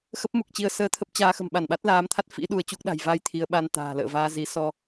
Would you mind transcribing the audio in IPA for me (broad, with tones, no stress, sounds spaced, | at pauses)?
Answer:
x ə˦˥ p̚ m u˨˩ k̚ t͡ɕ i˧ ə̯ s əː˧ t̪ʰ ə˦˥ p̚ t͡ɕ aː˧ x ə̤˨˩ m ɓ a˧˩ n ɓ a˦˥ t̚ l aː˨˦ m t̪ʰ a˦˥ t̚ f ḭ˧˥ ɗ u˧ ə̯ t͡ɕ u˦˥ k̚ ɗ a̤˨˩ j v a˧ j t̪ʰ i˨˦ ə̯ ɓ a˧ n t̪ a̤ː˨˩ l ə̰ː˧˨ v aː˧ z i˨˦ s ɔ˧